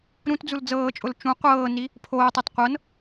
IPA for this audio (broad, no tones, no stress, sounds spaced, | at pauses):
ɾ ũ t d͡z u l d͡z ɤː t͡ʃʼ ʊ l t͡ʃ ũ qʷ ɤː n i | pʰ oː tˤ a t qʷ ɤ n